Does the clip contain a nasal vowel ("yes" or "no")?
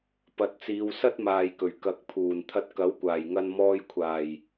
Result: no